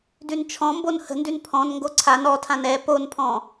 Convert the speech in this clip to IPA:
d ʉ n t͡ʃʰ ɔ̃ m b o n h ə̤ n d ʉ n pʰ ɔ̃ n ŋ ɡ o ǀʰ a n ɔ tʰ ã n ɛ p o n pʰ ɔ̃

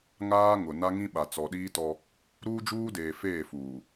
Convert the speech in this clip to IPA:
ŋ aː˦ ŋ ʊ˨ n a˦ ŋ ĩ˦ ɓ a˨ t͡s ɔ˨ ɗ iː˦ t ɔ˦ | ɾ uː˦ d͡ʒ uː˦ d eː˨ f eː˦˨ f uː˨

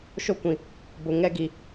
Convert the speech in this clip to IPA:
ʃ o˦ kʷ ĩ˨ | b ʊ˨ ŋ ɛ˦ ɡ i˨

